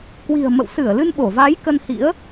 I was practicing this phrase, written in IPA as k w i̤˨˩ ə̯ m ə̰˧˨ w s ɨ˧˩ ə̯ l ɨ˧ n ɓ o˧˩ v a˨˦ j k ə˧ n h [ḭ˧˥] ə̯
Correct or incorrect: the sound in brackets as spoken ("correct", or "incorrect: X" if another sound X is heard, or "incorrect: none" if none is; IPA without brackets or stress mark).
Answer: correct